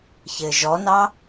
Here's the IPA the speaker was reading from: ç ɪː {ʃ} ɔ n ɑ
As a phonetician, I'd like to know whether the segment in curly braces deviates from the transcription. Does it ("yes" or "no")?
yes